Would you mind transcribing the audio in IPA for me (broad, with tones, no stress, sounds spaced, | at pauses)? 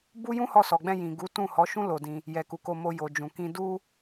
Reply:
b u˦ j ũ˦ h ɔ˧ s ɔ˨ ɡ͡b ɛ̃˧ j ĩ˨ ɡ u˨˦ t ũ˦˨ h ɔ˨˦ ʃ ũ˦ l o˧ d ĩ˧ | j ɛ˨ k u˨ k o˧ m o˧ j o˨ d͡ʒ ũ˨ k ĩ˧ d u˦